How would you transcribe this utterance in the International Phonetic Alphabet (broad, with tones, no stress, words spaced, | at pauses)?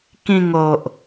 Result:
kĩ˧ŋo˨ʔ